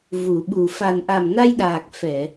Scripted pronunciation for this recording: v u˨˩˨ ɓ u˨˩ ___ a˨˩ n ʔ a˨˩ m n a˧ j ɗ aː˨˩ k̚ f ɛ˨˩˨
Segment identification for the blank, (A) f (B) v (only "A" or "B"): A